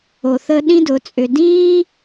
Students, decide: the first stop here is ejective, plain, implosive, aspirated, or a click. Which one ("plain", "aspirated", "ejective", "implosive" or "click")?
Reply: implosive